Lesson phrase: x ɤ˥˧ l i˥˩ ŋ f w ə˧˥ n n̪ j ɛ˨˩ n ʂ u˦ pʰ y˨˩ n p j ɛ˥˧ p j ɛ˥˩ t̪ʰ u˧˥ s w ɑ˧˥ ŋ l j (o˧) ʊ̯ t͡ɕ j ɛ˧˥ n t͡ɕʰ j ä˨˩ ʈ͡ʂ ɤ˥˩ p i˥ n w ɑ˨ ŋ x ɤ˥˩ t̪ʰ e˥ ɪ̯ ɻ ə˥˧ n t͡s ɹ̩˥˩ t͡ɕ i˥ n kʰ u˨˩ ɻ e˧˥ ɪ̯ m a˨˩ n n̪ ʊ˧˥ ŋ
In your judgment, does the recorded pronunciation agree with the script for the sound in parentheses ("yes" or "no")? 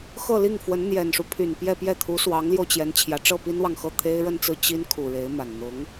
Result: yes